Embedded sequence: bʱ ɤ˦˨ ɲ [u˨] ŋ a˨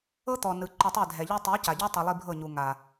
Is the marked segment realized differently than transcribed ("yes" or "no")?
no